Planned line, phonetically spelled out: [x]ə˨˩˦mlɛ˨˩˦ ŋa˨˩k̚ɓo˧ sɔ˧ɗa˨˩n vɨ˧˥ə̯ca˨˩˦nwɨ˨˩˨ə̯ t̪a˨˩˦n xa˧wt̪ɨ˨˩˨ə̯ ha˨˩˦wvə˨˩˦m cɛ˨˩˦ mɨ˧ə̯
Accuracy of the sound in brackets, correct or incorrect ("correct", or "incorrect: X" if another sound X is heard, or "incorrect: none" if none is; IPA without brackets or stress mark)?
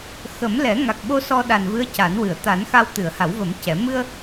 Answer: correct